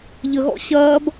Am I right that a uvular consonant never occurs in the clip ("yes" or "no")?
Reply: yes